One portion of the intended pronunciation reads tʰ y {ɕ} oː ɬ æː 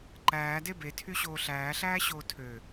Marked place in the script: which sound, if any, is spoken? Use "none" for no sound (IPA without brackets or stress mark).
ɕ